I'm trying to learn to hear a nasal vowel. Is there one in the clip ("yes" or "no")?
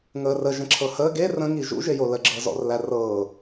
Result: yes